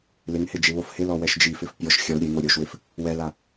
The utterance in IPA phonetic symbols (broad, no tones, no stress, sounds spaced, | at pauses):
l ɪ ŋ h ɪ d͡ʒ ɪ β o f h ɪ l ɔ w ɛ ʃ d͡ʒ i f ɪ f pʲ ɔ ʃ xʲ ɔ l ɾʲ e ŋ o ɾʲ o ʃ w ɪ f | w ɛ l a